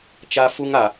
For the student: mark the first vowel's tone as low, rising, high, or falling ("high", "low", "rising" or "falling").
high